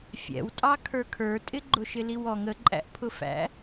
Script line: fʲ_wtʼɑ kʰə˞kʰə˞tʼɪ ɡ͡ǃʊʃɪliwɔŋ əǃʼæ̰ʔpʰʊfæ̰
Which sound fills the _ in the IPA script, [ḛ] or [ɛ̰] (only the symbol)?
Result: ɛ̰